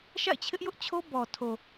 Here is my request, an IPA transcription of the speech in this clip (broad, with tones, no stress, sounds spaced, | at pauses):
ʃ a̰˦˨ ɪ̯ t͡ɕʰ ɪ˦ ʔ j ʊ˦ ʔ t͡ɕʰ o˦ b ɔ˨ tʰ o˨